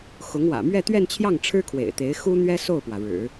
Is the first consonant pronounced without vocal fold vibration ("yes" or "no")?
yes